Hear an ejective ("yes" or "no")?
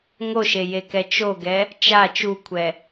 no